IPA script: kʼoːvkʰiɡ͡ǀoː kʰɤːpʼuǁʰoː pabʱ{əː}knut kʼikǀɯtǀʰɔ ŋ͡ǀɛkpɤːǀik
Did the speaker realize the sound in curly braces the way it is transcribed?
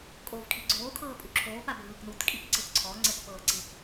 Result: no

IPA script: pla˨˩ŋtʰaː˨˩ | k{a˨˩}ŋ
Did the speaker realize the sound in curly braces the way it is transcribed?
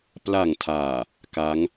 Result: no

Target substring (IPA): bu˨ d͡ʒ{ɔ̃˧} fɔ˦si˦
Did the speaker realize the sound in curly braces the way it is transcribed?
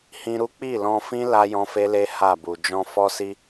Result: yes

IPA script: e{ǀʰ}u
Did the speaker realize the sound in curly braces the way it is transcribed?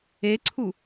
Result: yes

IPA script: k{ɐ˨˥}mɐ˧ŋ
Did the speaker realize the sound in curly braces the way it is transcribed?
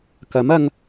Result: yes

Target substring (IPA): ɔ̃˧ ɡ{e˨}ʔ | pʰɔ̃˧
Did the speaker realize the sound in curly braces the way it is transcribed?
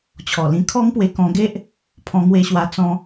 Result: no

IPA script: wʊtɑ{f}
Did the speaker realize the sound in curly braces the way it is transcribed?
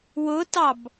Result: no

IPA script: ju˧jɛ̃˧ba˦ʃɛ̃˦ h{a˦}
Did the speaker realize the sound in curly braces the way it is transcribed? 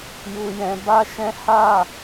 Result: no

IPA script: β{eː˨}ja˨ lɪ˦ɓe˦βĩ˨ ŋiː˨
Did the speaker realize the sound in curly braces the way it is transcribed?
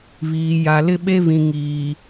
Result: no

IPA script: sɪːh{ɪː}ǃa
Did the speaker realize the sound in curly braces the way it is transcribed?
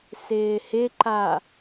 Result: no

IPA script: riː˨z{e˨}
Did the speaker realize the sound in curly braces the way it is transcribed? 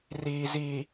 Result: no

